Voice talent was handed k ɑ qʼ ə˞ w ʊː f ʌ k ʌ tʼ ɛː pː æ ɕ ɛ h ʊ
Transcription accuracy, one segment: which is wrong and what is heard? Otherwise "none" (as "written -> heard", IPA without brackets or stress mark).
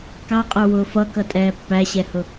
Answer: none